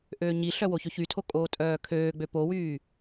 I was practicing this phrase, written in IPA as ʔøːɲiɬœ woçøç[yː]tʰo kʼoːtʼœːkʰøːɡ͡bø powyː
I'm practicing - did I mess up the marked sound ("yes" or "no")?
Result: yes